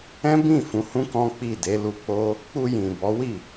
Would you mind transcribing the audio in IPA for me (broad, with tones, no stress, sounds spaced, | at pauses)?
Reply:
ɛ̃˦ b ĩ˦˨ f ũ˨˦ h ũ˦ k ɔ̃˦ k͡p i˦˨ d e˨˦ l u˧ k͡p o˦ | k͡p u˧ j ĩ˨ b ɔ˨˦ w i˦˨